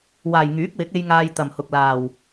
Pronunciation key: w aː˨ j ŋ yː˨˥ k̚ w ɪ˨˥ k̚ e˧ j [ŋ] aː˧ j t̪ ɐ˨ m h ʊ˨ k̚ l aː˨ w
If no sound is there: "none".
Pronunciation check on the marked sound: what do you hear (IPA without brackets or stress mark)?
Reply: ŋ